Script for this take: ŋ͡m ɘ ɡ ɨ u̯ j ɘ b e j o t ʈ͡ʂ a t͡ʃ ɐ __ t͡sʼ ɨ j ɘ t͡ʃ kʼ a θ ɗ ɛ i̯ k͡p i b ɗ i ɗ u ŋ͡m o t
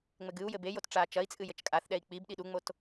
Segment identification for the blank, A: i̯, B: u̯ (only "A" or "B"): A